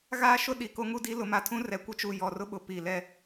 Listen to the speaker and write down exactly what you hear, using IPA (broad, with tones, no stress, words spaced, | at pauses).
ɣaː˦ʃʊ˦ ɗi˨ko˦ŋu˦di˦ lʊ˨˦ma˨tʰũ˦ rɛ˨kʷɪ˦t͡ʃu˨ jɔ˨rʊ˦ɓʊ˨ pi˨lɛ˦